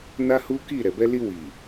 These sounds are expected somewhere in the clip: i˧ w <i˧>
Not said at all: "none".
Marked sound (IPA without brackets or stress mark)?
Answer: i˨